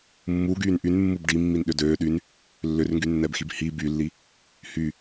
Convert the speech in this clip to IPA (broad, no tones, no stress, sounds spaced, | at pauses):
mː u ɡ yː n ʔ y n mː u b ɖ i mː i n ɗ ʏ d øː ɗ y n | lː ʏ r ŋ ɡ y nː ɛ b x i b h i b y lː i | h y